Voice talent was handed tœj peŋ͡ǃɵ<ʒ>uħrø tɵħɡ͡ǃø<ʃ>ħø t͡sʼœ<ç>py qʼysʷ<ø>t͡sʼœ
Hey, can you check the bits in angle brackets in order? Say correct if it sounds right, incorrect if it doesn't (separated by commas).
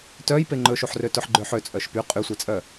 incorrect, incorrect, incorrect, incorrect